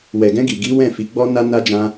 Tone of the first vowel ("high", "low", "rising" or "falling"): low